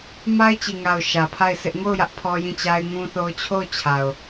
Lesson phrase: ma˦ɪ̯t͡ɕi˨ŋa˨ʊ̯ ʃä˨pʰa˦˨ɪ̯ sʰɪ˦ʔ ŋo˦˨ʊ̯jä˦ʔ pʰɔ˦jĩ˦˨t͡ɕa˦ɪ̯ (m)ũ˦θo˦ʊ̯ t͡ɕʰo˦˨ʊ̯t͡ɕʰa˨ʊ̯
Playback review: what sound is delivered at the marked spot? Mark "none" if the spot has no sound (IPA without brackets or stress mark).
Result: ŋ